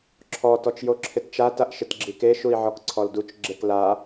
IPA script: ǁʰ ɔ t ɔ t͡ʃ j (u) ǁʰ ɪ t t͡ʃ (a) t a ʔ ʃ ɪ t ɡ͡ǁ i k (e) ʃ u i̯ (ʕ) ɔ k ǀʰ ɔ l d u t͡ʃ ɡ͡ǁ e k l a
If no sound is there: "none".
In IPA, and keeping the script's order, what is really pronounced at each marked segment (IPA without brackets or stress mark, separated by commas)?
o, a, e, ʕ